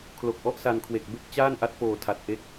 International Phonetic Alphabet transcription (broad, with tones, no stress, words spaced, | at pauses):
kʰlo˨˩k̚ʔɔ˦˥ʔsa˧n kʰwe˨˩k̚be˥˩k̚ t͡ɕaː˥˩nʔa˦˥t̚foː˨˩ tʰa˨˩t̚ʔe˦˥k̚